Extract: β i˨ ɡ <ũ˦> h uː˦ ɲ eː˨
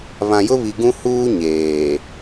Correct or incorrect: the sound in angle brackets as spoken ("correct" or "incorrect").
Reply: correct